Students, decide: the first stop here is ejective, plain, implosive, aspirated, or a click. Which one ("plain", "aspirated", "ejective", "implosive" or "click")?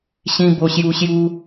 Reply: plain